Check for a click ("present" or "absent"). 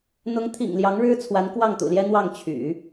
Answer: absent